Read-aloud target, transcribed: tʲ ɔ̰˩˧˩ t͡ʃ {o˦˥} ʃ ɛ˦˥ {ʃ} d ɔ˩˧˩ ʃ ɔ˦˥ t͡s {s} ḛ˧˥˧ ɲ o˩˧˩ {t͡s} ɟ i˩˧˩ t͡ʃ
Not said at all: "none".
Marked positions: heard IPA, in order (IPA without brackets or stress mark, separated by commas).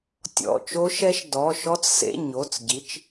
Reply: o˦˥, ʃ, s, t͡s